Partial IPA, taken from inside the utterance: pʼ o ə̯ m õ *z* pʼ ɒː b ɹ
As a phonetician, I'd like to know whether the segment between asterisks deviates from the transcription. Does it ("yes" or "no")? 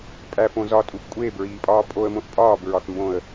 yes